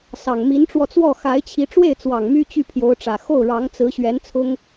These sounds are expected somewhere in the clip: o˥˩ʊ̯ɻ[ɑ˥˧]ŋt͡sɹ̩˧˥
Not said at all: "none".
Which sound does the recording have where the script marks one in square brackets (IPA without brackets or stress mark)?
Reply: ɑ˧˥